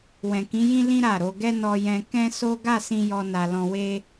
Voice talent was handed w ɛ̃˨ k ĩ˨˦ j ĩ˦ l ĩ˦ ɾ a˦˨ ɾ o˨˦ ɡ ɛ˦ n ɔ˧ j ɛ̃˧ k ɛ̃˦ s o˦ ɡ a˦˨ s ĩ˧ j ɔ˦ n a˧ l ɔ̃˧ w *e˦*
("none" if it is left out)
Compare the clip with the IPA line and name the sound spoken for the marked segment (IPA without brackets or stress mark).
e˦